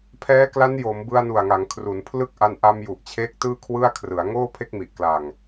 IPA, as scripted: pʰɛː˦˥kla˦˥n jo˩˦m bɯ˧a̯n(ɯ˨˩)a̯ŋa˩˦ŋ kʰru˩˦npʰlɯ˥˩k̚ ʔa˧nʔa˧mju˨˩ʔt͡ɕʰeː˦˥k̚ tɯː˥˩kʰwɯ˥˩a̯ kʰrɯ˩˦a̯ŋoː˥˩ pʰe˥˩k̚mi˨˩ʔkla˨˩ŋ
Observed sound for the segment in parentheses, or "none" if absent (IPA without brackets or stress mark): u˨˩